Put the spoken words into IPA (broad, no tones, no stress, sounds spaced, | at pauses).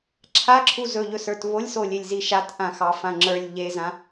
ǁʰ a ǁʰ u z ɵ ʎ ɵ s ə˞ t β o lʲ s o lʲ e lʲ z i ʃ a t ʔ ã x ɑ f ã ŋ͡ǁ ə˞ lʲ ʎ e z ã